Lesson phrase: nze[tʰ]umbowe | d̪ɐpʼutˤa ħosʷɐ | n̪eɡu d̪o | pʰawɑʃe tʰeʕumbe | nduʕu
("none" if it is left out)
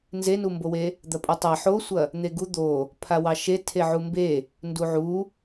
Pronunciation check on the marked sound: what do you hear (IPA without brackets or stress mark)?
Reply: n